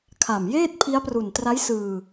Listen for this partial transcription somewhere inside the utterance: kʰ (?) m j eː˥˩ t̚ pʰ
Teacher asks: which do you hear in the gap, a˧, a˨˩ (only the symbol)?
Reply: a˨˩